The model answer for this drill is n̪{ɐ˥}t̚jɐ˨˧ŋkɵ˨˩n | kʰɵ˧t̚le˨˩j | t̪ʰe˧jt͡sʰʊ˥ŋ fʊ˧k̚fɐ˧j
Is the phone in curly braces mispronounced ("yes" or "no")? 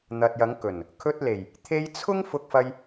yes